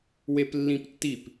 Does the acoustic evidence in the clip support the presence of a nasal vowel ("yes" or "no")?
yes